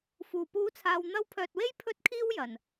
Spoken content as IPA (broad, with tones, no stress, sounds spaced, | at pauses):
f uː˨˩ p uː˨˥ t͡sʰ aː˨ w n̪ ɐ˧ w pʰ œː˨ t̚ w e˥ j pʰ ɵ˥ t̚ kʰ iː˥ w j ɐ˨˩ n